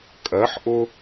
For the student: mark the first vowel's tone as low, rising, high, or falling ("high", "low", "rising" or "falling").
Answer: rising